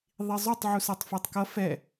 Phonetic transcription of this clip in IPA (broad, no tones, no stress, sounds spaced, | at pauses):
ðˤ i zˤ o tˤ ʕ u s a tˤ f ɛ tˤ k ʌ f ɛ